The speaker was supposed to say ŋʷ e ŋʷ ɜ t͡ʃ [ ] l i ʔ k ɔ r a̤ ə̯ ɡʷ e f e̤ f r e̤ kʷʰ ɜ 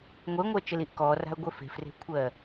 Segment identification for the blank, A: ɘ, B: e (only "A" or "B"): A